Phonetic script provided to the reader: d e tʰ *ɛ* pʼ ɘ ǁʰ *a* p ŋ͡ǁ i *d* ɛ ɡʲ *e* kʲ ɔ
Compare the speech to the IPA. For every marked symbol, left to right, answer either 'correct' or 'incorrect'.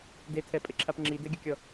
correct, correct, correct, incorrect: ɘ

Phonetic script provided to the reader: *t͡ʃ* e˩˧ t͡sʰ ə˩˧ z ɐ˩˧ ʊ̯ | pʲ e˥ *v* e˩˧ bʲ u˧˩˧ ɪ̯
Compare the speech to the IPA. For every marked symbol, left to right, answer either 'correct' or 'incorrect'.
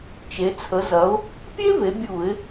correct, correct

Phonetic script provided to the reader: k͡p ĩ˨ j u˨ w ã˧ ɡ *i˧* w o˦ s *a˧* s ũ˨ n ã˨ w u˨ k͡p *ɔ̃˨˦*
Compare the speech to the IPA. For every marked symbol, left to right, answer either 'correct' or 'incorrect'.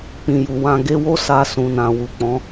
incorrect: e˧, correct, correct

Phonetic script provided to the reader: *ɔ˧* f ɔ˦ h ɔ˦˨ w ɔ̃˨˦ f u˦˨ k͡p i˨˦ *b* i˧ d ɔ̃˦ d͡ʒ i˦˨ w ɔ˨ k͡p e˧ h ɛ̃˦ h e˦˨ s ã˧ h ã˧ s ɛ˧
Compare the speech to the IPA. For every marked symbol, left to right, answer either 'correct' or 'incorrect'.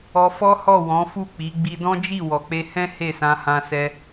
correct, incorrect: ɡ͡b

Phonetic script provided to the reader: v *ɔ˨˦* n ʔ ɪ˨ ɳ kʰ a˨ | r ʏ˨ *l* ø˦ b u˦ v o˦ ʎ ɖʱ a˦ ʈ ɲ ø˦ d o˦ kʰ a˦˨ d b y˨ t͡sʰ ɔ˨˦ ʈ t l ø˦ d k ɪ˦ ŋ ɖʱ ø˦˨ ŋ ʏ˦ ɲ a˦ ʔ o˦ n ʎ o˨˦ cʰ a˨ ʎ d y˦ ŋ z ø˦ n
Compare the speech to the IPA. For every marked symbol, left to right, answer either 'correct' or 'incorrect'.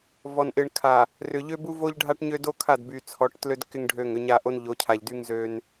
incorrect: ɔ˨, incorrect: ʎ

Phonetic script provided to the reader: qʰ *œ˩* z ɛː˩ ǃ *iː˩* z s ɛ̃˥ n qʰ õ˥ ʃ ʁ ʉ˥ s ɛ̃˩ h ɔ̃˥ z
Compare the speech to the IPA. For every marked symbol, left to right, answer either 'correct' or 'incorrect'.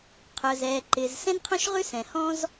correct, incorrect: ɪː˩

